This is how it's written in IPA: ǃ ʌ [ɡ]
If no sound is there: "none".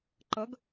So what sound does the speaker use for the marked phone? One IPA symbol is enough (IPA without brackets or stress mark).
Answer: ɡ